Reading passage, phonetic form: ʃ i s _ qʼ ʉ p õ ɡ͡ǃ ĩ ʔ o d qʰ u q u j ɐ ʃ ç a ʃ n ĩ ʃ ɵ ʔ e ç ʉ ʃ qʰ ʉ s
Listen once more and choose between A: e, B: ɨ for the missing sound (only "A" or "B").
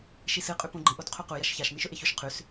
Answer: B